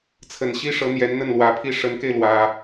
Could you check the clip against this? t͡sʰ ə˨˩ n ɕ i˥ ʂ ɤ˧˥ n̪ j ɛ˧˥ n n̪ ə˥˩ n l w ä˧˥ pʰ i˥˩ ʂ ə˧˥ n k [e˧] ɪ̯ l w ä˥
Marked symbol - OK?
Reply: yes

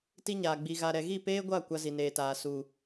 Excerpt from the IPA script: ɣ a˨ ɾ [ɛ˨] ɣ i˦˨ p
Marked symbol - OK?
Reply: yes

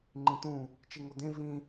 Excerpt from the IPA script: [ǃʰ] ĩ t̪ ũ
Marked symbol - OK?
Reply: no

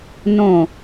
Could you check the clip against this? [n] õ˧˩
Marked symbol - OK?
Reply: yes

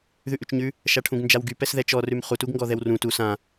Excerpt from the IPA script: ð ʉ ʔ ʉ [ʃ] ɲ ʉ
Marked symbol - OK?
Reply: no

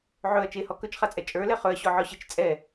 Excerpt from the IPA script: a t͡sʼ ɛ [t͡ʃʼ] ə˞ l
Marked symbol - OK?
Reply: yes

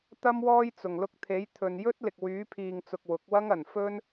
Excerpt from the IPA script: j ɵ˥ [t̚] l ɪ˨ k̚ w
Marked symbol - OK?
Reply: yes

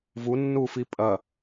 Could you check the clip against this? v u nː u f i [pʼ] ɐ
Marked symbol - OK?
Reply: yes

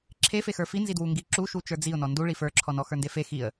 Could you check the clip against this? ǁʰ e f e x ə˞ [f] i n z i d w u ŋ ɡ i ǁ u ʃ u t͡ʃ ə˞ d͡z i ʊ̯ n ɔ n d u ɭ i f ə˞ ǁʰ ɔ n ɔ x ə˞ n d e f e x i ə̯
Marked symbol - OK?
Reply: yes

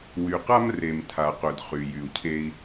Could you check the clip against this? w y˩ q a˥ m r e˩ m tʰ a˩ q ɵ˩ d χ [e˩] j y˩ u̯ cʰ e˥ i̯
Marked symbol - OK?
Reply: no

